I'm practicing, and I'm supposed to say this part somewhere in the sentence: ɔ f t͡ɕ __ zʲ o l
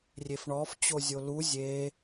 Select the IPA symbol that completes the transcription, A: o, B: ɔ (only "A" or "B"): A